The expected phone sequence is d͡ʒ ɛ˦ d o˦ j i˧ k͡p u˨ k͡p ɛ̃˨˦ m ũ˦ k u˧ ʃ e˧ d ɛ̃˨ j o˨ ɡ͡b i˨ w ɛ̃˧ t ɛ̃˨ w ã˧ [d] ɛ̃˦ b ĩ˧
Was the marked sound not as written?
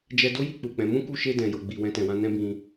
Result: yes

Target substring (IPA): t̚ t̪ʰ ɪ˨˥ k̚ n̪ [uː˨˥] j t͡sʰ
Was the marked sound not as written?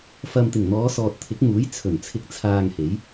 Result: no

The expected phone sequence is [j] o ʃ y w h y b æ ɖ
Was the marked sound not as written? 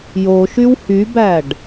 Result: no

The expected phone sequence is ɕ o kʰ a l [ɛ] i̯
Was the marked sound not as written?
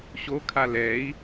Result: no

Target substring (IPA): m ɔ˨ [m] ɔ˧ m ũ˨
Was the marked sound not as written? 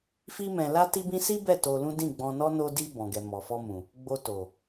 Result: yes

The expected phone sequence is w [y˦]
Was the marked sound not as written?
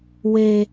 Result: yes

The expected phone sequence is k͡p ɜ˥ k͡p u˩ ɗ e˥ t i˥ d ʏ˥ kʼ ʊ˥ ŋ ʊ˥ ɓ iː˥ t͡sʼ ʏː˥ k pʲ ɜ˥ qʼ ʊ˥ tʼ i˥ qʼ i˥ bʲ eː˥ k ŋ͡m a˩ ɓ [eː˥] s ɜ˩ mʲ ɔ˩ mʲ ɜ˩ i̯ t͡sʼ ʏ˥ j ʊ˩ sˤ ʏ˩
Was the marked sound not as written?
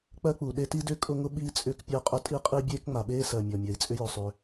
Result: no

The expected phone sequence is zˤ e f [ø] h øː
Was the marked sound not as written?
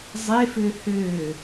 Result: no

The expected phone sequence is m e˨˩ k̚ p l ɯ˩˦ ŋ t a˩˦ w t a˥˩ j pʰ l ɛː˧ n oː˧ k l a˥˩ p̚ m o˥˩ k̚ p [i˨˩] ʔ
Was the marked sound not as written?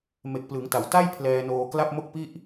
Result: yes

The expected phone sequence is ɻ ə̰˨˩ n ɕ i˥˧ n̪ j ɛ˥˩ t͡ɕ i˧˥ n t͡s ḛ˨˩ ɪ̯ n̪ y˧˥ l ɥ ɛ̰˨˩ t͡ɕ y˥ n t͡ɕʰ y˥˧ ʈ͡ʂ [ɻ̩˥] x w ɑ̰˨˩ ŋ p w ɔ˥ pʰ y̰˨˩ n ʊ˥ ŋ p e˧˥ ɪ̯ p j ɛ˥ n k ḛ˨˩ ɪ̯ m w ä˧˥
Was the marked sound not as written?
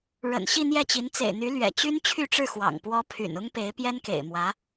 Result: yes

